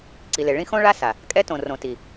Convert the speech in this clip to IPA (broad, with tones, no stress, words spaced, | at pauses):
ǀi˨le˨ ɭĩ˦xõ˦ ɭa˦sa˨ | kʼɛ˦tõ˨ rõ˨ti˨